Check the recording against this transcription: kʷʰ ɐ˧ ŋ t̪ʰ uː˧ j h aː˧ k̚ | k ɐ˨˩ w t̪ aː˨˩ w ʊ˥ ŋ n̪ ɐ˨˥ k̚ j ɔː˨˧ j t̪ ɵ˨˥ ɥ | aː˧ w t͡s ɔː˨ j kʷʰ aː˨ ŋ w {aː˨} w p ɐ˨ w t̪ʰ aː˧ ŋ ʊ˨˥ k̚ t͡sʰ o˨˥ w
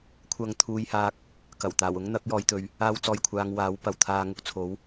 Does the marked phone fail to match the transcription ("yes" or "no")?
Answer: yes